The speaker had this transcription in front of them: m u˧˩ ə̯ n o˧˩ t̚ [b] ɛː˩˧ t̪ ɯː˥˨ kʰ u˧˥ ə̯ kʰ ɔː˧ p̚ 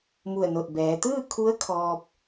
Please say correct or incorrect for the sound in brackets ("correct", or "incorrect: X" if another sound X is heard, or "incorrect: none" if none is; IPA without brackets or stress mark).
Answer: correct